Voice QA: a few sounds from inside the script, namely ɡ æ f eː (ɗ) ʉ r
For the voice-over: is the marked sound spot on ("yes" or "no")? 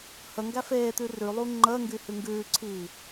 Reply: no